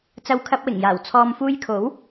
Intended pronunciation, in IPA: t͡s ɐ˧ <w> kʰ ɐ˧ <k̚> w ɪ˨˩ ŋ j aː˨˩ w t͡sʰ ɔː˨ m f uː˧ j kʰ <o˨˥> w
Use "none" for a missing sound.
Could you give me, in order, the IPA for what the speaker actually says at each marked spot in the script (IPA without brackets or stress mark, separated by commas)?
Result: w, p̚, o˨˥